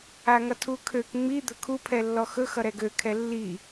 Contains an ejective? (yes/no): no